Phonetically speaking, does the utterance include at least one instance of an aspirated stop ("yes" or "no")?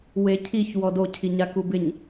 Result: yes